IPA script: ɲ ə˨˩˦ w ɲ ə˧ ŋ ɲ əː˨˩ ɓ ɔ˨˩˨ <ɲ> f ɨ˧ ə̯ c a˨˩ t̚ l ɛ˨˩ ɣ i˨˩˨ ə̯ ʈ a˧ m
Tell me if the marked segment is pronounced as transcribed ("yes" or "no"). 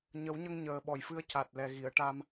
no